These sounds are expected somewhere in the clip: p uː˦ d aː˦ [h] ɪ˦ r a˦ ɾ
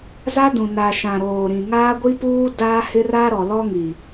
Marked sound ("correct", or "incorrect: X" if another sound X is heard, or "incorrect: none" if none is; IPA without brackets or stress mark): correct